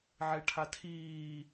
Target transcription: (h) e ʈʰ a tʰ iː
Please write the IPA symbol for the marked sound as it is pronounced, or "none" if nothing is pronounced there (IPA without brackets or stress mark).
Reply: ʕ